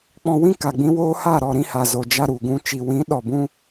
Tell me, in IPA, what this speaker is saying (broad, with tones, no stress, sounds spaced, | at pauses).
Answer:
k͡p ɔ̃˧ w ĩ˦ k a˨ ɡ͡b ĩ˧ w oː˦ h a˦˨ ɾ ɔ˦˨ ɾ ĩ˦ h a˨ z o˨ d͡ʒ a˧ ɾ u˨ ɡ ũ˧ t͡ʃ i˨ w ĩ˨˦ ɗ ɔ˨ b ũ˧